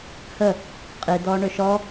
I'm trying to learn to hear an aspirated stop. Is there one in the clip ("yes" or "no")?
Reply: no